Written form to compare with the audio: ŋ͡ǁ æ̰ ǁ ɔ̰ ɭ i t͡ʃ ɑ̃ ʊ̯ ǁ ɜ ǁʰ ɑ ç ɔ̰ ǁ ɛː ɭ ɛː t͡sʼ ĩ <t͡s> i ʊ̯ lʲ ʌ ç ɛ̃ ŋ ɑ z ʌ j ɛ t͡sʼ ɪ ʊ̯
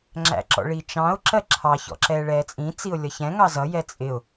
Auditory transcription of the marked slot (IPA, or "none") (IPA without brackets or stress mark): t͡s